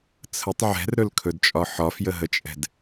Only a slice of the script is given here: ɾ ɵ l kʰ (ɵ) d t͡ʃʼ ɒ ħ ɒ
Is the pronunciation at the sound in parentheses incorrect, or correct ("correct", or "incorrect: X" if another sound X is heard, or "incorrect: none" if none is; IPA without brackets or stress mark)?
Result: correct